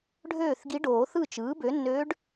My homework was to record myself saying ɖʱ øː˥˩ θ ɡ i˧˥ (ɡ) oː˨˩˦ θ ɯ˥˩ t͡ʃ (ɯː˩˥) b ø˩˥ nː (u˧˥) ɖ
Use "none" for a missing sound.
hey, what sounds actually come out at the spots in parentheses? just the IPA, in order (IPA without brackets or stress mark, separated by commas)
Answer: ɖ, ɯː˩˥, ø˧˥